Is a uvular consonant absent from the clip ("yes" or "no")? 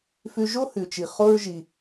no